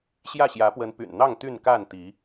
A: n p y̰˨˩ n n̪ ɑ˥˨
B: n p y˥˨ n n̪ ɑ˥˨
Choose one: A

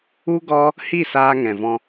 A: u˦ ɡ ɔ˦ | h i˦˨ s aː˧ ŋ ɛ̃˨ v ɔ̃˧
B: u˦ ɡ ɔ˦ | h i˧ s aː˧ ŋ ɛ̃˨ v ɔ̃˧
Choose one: A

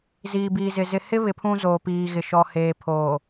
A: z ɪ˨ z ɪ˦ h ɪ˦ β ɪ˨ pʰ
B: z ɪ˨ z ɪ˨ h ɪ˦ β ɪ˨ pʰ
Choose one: B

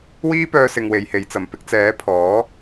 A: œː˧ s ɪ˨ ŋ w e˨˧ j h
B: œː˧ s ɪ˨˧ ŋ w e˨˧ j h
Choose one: A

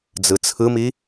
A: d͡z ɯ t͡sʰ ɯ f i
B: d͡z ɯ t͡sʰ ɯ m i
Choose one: B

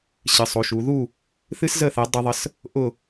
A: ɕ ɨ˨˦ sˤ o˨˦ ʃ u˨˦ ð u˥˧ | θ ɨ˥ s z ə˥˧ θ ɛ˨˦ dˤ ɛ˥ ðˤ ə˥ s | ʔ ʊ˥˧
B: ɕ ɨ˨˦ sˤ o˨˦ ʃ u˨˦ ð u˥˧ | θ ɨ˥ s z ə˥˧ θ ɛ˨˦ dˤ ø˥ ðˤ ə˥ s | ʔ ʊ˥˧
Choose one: A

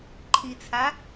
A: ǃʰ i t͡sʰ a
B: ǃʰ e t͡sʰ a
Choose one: A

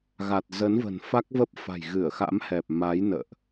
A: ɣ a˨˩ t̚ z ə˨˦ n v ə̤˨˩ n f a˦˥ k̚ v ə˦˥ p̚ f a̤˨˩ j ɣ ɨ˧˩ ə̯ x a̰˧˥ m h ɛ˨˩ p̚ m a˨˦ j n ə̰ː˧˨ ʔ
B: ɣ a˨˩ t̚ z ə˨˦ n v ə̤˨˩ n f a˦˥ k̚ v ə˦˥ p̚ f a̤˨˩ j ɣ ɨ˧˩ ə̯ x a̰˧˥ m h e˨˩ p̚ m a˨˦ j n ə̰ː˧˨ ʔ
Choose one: A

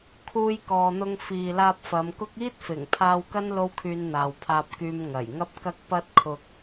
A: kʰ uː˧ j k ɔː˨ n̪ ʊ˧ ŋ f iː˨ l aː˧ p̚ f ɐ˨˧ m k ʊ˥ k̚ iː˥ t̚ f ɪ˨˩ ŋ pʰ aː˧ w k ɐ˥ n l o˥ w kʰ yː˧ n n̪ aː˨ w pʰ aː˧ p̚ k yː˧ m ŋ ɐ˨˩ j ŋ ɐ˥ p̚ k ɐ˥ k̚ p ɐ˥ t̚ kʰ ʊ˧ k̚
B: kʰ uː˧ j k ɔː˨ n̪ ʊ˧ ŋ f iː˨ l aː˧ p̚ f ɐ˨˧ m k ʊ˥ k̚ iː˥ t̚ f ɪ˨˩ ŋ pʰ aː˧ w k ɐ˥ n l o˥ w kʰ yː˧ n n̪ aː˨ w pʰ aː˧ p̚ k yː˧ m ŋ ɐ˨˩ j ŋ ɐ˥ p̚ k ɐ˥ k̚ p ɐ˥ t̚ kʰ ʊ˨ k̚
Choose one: A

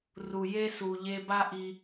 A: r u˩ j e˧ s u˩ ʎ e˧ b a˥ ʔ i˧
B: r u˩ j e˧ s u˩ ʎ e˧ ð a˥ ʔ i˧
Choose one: A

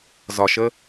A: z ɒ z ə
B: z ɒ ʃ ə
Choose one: B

